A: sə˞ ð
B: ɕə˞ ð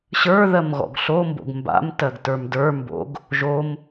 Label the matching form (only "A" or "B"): B